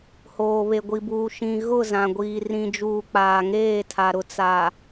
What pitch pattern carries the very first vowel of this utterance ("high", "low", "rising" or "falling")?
low